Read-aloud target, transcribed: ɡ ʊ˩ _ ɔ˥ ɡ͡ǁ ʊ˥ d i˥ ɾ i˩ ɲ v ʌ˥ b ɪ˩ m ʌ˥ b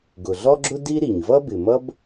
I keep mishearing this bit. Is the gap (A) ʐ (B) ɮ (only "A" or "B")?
B